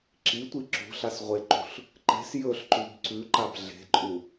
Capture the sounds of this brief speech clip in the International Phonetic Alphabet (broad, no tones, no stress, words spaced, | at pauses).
ǁitʷi ǁṳɬas ʁʷeǃṳɬ | ǃe̤s jɵɬǃʉb ǀʉ ǃabɮe̤ǃʼu